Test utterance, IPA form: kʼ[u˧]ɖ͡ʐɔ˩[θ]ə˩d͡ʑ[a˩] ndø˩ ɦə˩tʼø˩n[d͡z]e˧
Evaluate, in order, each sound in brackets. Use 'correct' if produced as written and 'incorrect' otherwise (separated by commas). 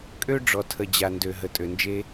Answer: incorrect, incorrect, correct, incorrect